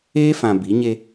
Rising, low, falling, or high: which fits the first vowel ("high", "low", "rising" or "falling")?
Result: high